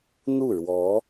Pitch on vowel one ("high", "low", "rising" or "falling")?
falling